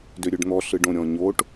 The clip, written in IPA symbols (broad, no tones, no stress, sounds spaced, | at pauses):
d ø ɾʲ ø ɖ n̪ ɔ ɬ ɯ ɖ õ ɾʲ ɔ̃ ɲ o ʈ